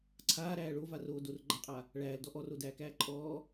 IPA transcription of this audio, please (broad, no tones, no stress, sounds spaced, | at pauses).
ǀʰ aː ɾ æː ɭ o v a r oː d o r ɡ͡ǃ a qʼ a | ɭ æː l d ɔ ʔ ɔ r o d æː k æː ǃʼ ɔː